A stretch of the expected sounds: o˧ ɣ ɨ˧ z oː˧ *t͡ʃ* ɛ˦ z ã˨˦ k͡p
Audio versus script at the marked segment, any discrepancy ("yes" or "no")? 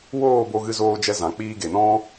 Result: yes